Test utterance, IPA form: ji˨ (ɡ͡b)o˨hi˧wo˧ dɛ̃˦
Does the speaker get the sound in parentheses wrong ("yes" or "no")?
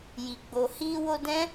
no